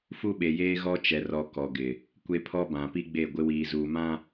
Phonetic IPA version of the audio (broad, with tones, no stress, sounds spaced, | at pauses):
f u˦ ɓ e˨ j eː˦ ɣ ɔ˦ t͡ʃ ɛ˨ r ɔ˨ k ɔ˨ ɡ ɪ˨ | kʷ e˦ pʰ ɔ˦ b ã˨ p i˦ ɡ͡b e˦˨ ɡʷ ɪ˦ w iː˨ z uː˨ m ã˦